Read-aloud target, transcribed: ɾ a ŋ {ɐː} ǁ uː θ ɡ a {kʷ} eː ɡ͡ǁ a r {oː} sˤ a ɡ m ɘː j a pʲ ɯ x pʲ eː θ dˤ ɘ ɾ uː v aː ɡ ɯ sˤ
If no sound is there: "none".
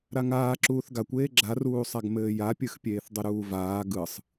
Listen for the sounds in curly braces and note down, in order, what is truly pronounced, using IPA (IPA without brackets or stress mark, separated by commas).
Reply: aː, kʷ, uː